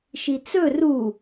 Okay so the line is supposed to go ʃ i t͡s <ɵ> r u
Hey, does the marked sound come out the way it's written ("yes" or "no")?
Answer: yes